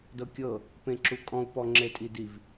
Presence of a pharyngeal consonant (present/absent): absent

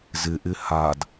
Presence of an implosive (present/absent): absent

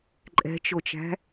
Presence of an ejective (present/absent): present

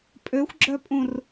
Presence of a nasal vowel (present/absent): present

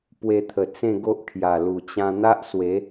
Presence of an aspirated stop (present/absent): present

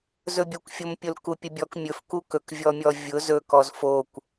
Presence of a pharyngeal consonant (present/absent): absent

